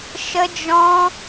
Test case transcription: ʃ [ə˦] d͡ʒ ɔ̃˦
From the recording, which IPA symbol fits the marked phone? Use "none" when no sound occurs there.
ə˦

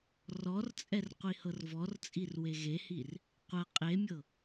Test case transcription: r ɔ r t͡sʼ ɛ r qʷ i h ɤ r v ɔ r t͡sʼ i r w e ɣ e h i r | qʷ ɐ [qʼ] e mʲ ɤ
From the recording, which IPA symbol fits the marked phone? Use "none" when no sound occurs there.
qʼ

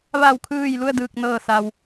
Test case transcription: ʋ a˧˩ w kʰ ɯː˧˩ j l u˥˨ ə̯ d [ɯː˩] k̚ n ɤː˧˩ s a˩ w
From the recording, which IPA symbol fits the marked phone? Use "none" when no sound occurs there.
ɯː˧˩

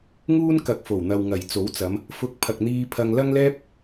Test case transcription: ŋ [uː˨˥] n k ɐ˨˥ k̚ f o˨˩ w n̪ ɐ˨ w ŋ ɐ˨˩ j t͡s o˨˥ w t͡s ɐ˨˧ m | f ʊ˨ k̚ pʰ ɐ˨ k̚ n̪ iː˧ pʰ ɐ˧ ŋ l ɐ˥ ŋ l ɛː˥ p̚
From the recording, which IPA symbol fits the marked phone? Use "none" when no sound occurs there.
uː˥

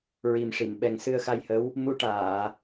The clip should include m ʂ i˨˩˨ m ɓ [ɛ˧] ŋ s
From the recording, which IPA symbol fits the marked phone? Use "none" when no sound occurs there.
ɛ˨˩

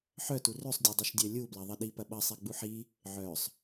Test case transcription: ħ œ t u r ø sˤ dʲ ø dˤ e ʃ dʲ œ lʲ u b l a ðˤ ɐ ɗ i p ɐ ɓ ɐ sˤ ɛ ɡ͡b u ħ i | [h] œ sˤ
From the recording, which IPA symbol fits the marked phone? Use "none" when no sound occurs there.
ʕ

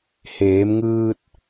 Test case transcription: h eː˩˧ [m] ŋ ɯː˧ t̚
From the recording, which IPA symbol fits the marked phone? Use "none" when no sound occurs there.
m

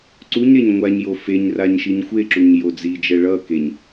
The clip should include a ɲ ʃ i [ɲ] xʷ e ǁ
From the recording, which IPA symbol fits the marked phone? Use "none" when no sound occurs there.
ɲ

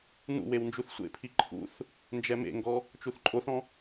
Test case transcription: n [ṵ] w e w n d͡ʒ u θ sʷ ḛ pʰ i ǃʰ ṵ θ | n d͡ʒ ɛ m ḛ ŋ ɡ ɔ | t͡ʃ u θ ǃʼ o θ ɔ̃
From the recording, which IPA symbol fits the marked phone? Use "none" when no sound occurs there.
ṵ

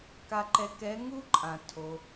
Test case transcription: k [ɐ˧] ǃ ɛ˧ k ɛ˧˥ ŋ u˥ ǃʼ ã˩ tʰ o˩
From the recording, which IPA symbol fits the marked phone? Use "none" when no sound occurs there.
a˧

